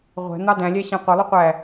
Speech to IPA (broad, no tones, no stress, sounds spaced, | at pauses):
ʁʷ ɛ̤ n̪ ɑ d æ̃ lʲ æ ɕ æ̃ qʷ ʌ lˠ u qʷ æ